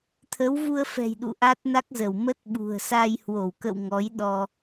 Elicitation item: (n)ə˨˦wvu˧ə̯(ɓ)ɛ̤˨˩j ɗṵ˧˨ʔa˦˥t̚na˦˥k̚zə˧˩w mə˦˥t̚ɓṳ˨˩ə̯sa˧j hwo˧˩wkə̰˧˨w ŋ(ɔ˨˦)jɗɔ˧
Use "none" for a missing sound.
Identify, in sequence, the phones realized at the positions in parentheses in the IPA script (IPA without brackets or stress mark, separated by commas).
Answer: t̪ʰ, f, ɔ˨˦